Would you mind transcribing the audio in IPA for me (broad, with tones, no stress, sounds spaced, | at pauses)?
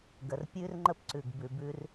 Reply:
ɡ ə˨ r pʲ ʉ˥ r ŋ͡ǃ ə˥ p ǀ ʉ˨ ɡ b ʉ˨ b ʉ˦ r